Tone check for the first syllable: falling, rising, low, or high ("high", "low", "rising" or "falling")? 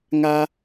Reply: high